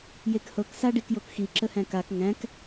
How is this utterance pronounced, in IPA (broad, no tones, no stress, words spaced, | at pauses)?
jekhɤk saɖikjokxi ǁəhæ̃kak ŋæ̃k